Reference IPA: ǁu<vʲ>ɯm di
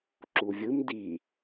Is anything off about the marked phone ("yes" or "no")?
no